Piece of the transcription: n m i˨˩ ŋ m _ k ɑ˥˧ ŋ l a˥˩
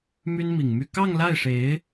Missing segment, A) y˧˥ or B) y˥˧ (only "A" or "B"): B